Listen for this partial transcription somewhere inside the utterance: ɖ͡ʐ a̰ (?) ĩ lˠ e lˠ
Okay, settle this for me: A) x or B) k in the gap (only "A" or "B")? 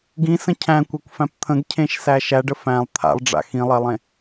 A